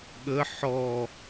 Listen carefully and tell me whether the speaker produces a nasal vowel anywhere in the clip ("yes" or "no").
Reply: no